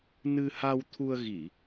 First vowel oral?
yes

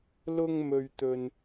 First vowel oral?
yes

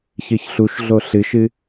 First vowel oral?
yes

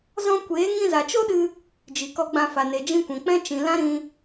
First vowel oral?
no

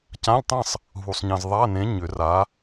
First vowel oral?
no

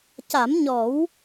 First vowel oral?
yes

